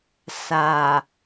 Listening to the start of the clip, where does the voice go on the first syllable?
low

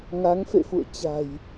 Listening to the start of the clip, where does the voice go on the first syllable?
rising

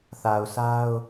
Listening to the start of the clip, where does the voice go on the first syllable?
low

